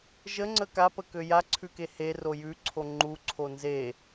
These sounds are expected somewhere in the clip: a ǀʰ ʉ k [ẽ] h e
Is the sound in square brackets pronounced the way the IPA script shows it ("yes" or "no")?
no